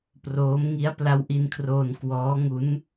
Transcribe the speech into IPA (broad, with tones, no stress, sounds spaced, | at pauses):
p r oː˦˥ m ŋ i˦˥ a̯ p l a˦˥ w ʔ i˧ n kʰ r oː˧ n k w ɔː˦˥ ŋ u˦˥ n